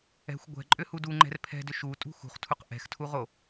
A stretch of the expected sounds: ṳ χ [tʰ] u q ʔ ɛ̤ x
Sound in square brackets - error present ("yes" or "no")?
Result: no